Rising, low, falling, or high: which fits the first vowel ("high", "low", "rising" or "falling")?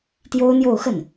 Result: high